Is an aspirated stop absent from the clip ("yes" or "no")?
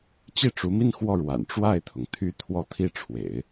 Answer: no